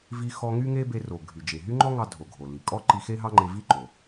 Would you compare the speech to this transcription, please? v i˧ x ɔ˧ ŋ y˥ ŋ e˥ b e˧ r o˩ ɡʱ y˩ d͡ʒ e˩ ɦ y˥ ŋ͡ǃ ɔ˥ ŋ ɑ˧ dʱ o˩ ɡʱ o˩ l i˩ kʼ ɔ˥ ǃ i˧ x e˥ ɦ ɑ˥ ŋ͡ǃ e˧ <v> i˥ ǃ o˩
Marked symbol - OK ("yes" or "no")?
yes